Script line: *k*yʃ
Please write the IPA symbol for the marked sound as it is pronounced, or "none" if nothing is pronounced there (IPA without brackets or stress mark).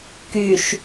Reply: k